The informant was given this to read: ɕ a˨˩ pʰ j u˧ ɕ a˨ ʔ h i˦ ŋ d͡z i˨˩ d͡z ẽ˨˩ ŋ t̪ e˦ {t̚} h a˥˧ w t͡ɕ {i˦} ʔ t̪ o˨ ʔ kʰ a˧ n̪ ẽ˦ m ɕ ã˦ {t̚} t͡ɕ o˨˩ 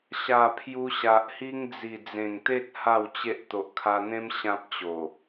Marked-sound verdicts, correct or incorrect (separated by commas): correct, incorrect, incorrect